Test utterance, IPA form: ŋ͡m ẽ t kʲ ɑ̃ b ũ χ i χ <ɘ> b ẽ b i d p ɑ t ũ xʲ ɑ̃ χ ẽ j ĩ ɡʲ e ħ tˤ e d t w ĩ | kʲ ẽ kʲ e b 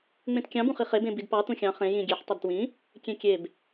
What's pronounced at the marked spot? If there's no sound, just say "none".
e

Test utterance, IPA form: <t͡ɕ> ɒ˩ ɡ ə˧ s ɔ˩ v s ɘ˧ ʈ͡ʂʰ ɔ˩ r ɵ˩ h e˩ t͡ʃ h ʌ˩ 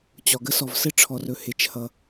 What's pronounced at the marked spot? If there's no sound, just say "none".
t͡ɕ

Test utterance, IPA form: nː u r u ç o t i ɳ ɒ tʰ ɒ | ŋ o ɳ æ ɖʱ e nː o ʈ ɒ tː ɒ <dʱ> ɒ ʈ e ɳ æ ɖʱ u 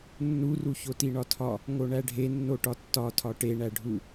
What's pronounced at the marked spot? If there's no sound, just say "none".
tʰ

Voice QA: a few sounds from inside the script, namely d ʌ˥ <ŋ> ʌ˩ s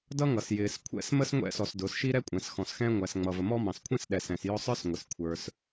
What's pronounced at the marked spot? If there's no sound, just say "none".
ŋ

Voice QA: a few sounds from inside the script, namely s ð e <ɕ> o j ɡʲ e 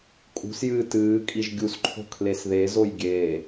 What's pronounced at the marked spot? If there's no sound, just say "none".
z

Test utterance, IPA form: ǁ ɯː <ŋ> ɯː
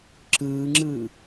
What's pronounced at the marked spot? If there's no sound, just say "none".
ŋ͡ǁ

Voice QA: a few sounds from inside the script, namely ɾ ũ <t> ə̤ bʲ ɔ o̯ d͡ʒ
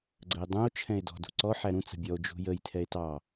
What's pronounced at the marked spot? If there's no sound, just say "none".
t͡s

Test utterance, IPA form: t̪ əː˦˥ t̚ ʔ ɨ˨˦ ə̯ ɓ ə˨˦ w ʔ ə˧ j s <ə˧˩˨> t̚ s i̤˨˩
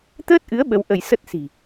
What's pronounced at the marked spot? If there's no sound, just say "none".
ə˦˥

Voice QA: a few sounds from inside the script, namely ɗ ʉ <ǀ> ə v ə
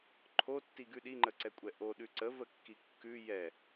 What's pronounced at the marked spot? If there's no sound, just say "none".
ǀ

